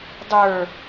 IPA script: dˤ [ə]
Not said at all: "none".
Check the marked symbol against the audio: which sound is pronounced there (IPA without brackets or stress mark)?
ə˞